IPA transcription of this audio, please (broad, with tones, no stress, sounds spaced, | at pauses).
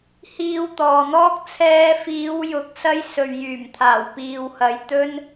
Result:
h iː˧ w t̪ ɔː˨ n̪ ɔː˥ k̚ t͡sʰ ɛː˧ f iː˨˧ w j ʊ˨ k̚ s ɐ˧ j s ɵ˨ ɥ j yː˨˩ m t̪ʰ aː˨˩ w p iː˨ w h ɐ˨˧ j t̪ ɵ˥ n